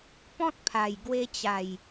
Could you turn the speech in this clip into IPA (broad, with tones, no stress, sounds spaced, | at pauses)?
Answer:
p ɔ̃˦ t̚ pʰ a˨˩ j ɡ w e˧ t͡ɕ a˨˩ j